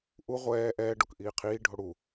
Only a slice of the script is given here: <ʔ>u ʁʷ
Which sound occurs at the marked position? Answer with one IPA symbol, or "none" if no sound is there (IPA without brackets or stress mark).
ʔ